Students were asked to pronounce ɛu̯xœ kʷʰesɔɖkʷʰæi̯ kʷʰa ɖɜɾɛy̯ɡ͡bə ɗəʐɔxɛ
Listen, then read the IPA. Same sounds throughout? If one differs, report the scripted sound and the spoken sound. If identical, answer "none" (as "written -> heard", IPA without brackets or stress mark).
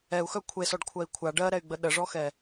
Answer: æ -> ɜ